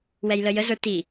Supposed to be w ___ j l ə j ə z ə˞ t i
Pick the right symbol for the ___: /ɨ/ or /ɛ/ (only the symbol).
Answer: ɛ